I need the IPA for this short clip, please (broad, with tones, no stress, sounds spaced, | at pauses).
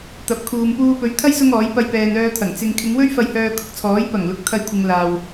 t̪ ɐ˨˥ p̚ kʰ uː˨ m p uː˧ p ɵ˨˥ ɥ t̪ʰ ɐ˥ j s ʊ˥ ŋ ɔː˨˥ j p ɐ˧ j p ɛː˨ n œː˧ t̪ʰ ɐ˨˩ ŋ t͡s ɪ˧ ŋ kʰ ɪ˨˧ ŋ w ɵ˥ ɥ f ɐ˧ j h œː˧ kʰ ʊ˧ k̚ t͡sʰ ɔː˨˥ j p ɐ˨˩ ŋ l ʊ˨ k̚ t̪ʰ ɐ˧ j kʷʰ ɪ˨ ŋ l aː˨ w